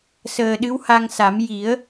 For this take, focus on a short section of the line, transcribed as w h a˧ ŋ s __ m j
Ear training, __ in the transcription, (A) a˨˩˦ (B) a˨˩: A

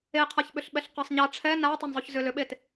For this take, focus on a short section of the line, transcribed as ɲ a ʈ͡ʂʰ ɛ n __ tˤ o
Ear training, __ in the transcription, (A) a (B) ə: A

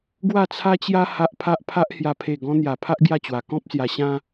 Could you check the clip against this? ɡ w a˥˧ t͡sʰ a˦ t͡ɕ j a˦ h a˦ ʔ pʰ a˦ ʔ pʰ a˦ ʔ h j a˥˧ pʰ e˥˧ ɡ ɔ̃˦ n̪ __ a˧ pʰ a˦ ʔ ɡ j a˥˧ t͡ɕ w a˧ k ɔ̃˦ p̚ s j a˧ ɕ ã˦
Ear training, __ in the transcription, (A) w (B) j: B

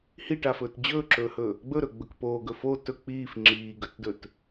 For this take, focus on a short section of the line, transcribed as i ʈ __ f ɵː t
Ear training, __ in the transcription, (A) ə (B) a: B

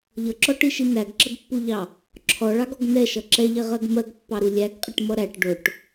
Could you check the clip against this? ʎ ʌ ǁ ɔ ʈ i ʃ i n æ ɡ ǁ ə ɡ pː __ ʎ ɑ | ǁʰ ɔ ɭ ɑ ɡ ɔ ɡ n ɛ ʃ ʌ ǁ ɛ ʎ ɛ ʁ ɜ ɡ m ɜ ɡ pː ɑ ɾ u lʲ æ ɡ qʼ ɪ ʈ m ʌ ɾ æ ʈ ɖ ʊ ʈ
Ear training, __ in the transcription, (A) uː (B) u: B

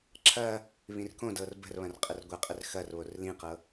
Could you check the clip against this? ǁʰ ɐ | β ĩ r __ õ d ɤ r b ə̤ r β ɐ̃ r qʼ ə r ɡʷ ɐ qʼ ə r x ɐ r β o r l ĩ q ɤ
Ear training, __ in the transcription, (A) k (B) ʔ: A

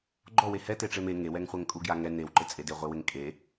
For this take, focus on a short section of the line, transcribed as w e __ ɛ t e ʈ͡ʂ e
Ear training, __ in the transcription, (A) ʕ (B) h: B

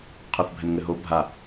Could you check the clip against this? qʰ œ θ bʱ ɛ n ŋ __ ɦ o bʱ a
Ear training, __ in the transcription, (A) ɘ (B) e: A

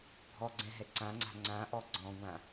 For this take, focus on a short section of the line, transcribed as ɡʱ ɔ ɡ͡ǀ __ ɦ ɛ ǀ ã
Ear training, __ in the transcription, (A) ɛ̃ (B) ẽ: A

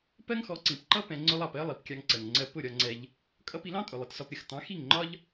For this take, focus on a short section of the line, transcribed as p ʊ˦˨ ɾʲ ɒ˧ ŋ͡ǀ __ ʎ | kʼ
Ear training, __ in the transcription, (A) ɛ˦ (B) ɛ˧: B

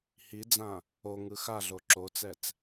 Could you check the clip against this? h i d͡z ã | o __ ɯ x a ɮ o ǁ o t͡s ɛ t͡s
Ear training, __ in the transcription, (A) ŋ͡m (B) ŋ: B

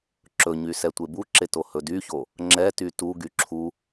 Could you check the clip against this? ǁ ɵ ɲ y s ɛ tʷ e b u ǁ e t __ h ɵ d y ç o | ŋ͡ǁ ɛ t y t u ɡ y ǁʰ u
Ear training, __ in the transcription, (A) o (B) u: A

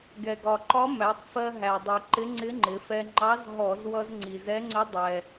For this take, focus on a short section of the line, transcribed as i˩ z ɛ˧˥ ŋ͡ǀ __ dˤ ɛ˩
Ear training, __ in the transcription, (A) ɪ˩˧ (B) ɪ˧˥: B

